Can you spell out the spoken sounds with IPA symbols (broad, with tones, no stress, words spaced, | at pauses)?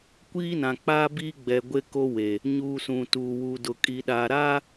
kʷiː˦nã˨k͡pa˦ biː˦ɡ͡bɛ˨ ɡʷe˦ko˦we˨ | ɲuː˨ sũ˨tuː˨ wu˨dʊ˨ kʼi˨ ɗaː˨ɾaː˦